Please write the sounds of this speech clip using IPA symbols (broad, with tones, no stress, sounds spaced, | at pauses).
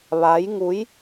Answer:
ʋ a˧˥ j ŋ u˧˥ j